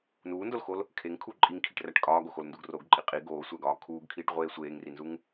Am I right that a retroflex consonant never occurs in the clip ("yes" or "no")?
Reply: no